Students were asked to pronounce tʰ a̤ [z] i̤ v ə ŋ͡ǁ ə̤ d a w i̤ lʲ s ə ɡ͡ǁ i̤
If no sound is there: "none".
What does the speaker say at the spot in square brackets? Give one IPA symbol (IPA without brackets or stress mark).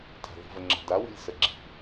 ð